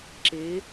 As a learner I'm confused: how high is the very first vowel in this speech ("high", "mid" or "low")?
mid